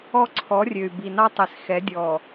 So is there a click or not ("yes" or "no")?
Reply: yes